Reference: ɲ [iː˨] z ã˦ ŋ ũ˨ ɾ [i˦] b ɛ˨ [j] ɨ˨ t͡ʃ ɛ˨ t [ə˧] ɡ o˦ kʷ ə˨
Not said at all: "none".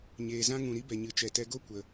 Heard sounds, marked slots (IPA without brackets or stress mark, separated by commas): eː˨, i˦, ɲ, ɛ˧